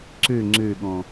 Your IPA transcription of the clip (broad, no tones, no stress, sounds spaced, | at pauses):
ǀ ø ŋ͡ǀ ø ɠ ɔ̃